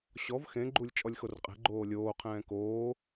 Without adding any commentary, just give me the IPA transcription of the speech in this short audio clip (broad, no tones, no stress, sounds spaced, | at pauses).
ɕ ɔ v x ẽ ɡ͡ǃ u lʲ t͡ʃʼ ɔ lʲ x o r qʼ ɛ̤ ɡ͡ǃ oː lʲ oː qʰ ɛ̃ː k oː